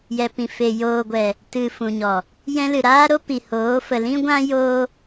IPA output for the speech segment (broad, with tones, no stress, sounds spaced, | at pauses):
j ɛ˨ p ĩ˨ f e˨ j oː˨ ɡʷ ɛ˨ | t ɨ˨ f ũ˨ ɲ ɔ˨ | j ɛ̃˧ l ɨ˨ ɾ aː˦ ɾ o˦ p i˨ h oː˨˦ f ə˨ l ĩ˦ ɡʷ ã˦ j oː˦